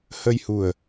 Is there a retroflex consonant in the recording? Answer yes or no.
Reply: no